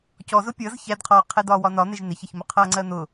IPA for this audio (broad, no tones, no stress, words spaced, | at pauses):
cɔ zʊpʲʌz çædqʰɔːqʰɛ dɒːwɒnɒn̪ɪʒ nɪçəçmʊ qʰʌːŋ͡ǀɜn̪ʊ